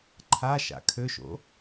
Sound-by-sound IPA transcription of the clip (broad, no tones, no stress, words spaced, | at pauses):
ǃʰa ʃa̰kʰøʃo̰